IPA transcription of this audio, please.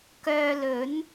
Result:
kœː˧lɵ˨˥n

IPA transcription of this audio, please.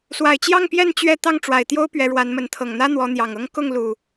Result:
swa˨˩ɪ̯t͡ɕjɑ˥˨ŋpjɛ˥˨n t͡ɕɥɛ˥˨ t̪ɑ˥˨ŋʈ͡ʂwa˨˩ɪ̯t̪jo˦ʊ̯ pɥɛ˨˦ɻwa˨˦nmə˨˦n t̪ʰɤ˨˩ŋn̪ä˦ n̪wɔ˨˦n̪jɑ˨˩ŋɤ˦ŋ kʊ˥˨ŋlu˨˩

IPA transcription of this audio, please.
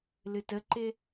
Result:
lɨtəǃɪ

